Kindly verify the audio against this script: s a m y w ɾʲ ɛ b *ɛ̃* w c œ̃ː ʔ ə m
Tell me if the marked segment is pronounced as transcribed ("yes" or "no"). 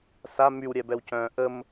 no